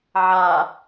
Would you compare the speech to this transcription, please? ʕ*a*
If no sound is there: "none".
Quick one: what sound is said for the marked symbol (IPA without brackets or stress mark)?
a